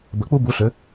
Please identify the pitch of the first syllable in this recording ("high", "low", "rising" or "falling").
rising